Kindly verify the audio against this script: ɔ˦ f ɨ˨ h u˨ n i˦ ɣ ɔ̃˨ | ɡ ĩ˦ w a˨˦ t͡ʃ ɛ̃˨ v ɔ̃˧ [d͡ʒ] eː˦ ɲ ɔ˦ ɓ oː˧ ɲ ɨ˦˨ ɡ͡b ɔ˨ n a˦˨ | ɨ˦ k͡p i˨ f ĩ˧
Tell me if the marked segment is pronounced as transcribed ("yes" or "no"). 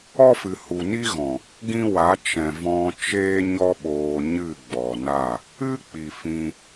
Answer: no